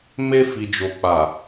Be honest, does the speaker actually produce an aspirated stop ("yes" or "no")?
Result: no